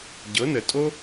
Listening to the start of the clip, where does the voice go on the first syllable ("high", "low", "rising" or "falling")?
rising